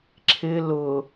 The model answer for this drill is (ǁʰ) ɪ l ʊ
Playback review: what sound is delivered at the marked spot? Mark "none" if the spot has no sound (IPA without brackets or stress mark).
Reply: ǁʰ